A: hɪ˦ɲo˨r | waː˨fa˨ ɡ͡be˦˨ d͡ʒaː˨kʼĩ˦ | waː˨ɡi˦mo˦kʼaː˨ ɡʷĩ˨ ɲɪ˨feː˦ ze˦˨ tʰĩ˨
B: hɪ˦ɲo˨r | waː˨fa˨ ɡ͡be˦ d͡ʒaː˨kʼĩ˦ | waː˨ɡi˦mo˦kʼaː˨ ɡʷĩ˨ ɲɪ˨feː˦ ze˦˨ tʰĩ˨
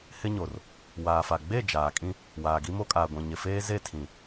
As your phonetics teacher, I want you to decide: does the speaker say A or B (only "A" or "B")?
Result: A